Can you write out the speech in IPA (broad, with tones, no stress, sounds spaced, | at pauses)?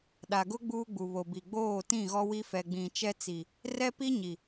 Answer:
ɗ a˨ ɡ ʊ˦ ɡ͡b uː˦ ɡ͡b u˨ β o˨ b i˨ ɡ͡b oː˦˨ t ĩ˦˨ ɣ ɔ˦ w i˦ f ɛ˨ ɡ͡b ĩ˨ t͡ʃ ɛ˦ t͡s i˨ | r ɛ˦ p i˦ ɲ i˨